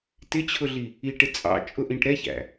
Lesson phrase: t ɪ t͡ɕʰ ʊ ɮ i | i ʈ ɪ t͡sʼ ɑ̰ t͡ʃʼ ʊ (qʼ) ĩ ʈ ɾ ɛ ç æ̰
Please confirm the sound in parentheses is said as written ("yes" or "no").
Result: no